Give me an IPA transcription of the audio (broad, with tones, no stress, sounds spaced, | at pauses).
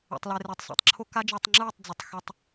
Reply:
ḛ˨ tˤ l ɛ˨ r e˨ tˤ s ḛ˨ tˤ ǁʰ o˦ k a˦ d͡ʒ ɯː˨ tˤ ŋ͡ǁ ɯː˦˨ tˤ d͡z ʌ˨ tˤ x ɛ˦ tˤ